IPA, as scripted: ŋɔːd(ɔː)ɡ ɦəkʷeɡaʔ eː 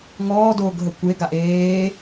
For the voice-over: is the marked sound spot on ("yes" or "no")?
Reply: no